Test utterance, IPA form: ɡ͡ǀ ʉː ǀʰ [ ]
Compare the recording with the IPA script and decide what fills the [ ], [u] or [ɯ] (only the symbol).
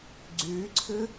ɯ